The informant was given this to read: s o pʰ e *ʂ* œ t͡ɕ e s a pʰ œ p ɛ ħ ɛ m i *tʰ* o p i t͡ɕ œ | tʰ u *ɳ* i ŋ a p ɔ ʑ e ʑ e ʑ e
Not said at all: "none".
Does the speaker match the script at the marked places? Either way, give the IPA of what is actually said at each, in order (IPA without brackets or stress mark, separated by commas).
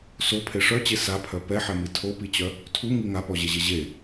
ʂ, tʰ, ŋ